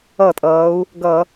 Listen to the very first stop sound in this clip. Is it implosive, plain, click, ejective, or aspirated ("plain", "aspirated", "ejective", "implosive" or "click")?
ejective